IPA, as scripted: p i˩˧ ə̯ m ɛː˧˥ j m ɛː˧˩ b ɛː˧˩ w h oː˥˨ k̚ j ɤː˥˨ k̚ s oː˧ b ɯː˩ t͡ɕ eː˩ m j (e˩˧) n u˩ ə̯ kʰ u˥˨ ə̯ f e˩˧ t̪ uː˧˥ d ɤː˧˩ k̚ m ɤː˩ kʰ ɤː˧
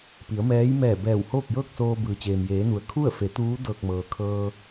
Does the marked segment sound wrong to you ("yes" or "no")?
yes